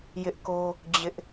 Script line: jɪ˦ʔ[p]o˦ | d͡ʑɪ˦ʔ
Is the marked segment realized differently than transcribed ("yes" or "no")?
yes